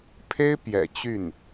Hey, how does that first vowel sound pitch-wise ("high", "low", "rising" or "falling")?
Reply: high